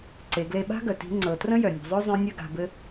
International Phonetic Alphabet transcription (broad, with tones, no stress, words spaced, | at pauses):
ǀe˩˧ɡle˧ɓa̤˥ ɡœ˩ti̤˧˥ŋ͡ǀɤ˩˧ trə̃˥jœ˩ nʲe̤˩˧zˤœ˥zˤẽ˧˥ nʲœ˧ ɡa̤˩˧bɘ˧˥